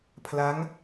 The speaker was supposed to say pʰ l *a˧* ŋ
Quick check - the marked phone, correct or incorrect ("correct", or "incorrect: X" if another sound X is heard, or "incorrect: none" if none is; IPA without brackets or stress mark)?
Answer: incorrect: a˦˥